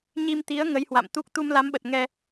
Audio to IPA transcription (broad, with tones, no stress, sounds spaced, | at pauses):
ɲ i˧ m t̪ i˨˦ ə̯ ŋ ə˨˦ j h w a̰˧˨ m t̪ u˦˥ k̚ t̪ u˧ m l a˨˦ m ɓ ə˨˩ t̚ ŋ ɛ˧